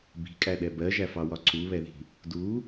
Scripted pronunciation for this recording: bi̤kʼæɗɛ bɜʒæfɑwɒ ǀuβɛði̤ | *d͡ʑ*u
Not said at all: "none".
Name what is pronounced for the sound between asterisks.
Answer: d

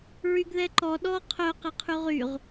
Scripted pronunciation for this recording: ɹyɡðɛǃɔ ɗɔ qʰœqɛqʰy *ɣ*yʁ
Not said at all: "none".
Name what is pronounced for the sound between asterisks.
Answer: ʁ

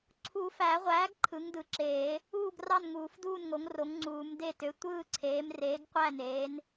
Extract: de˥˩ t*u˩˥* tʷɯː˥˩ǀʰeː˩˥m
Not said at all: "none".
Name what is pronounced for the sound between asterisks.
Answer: ø˩˥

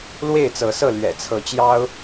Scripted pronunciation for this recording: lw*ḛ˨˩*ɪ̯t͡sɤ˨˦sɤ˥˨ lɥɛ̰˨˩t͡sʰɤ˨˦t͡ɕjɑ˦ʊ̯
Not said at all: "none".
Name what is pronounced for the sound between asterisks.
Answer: e˥˨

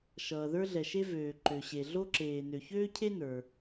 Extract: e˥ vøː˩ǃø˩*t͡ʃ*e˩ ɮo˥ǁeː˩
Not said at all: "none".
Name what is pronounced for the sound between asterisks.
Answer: ɕ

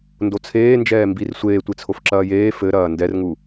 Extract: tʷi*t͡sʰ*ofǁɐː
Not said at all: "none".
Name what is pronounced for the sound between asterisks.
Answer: t͡sʰ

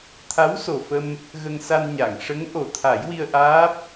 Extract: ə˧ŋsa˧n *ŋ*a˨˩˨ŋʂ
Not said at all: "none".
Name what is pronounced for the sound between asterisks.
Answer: ɲ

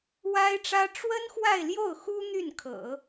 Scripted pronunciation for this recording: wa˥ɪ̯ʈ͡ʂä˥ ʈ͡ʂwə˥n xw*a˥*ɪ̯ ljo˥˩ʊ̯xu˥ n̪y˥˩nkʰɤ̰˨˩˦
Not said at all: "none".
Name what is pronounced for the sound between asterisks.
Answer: a˥˧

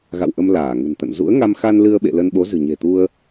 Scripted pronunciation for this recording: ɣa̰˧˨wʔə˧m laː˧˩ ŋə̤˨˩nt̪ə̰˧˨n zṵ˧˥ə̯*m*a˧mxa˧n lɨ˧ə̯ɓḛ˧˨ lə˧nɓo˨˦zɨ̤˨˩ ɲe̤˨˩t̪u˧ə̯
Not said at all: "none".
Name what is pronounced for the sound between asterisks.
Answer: ŋ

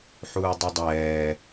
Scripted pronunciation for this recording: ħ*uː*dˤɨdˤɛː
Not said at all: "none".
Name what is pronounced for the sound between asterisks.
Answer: uː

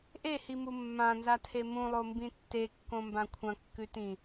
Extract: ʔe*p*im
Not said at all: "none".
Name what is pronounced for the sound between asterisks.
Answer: h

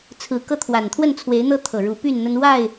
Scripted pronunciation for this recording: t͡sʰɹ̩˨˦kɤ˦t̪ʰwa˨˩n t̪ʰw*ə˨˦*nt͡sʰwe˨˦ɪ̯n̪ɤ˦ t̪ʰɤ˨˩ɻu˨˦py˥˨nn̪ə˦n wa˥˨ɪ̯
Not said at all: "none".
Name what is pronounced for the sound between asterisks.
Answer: ə˥˨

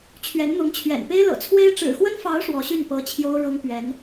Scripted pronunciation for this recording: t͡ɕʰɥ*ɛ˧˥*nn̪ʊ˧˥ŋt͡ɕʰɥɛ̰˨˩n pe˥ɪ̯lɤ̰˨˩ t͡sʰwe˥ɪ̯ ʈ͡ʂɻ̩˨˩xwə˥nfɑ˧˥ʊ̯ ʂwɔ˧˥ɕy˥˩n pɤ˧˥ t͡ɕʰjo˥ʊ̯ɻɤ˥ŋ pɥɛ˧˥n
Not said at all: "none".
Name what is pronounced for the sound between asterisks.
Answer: ɛ˧˥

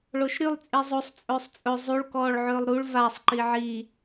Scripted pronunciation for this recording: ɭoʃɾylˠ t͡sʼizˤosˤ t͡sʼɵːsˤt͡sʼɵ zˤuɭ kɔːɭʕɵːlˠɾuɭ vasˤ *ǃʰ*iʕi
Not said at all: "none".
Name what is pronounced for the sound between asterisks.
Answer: ǃ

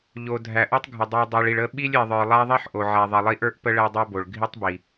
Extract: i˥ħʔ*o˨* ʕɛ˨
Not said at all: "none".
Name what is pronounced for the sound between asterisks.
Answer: o˨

